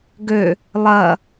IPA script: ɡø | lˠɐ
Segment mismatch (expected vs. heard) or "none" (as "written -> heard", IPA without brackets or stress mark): none